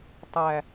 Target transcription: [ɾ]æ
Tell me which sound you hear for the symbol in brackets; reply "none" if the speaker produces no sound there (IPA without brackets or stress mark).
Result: tˤ